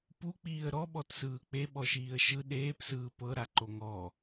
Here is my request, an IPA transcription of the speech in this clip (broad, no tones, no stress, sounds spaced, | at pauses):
p u k͡p iː ə̯ ɾ ɔ ɓ ɔ t s ɯː k͡p e ɓ ɔ ʃ iː ə̯ ʃ ɯ ɗ eː p s ɯː p ɤ ɾ a ǃ o ŋ ɔ